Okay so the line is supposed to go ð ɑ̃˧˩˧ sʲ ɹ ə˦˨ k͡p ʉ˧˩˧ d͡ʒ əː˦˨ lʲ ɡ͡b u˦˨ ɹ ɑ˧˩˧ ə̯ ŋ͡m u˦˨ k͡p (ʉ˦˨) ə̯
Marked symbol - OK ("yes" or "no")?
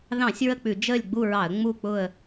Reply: no